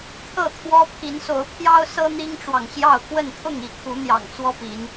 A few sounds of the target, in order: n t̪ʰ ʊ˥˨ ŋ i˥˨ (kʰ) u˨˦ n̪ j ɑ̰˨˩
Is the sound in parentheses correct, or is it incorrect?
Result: correct